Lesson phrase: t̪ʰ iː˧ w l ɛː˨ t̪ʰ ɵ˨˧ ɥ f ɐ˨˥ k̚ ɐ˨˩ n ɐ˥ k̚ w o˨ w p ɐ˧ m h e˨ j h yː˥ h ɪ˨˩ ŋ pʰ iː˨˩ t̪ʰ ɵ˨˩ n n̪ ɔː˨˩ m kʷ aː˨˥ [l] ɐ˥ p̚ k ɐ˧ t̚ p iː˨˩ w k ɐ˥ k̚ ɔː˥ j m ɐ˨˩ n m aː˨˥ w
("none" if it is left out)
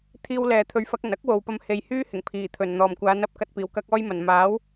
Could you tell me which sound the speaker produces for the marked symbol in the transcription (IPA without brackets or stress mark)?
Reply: n